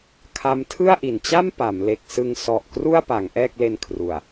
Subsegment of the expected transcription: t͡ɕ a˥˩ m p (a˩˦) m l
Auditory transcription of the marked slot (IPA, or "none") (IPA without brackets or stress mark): a˩˦